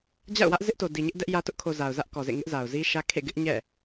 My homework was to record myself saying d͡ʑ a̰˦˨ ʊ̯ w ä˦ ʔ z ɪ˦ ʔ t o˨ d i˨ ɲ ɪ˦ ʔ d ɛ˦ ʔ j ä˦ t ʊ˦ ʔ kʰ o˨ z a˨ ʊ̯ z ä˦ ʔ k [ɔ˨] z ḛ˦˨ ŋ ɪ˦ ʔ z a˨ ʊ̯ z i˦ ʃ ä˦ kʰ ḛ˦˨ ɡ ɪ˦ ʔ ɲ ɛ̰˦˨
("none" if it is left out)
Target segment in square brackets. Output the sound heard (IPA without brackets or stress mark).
ɔ˨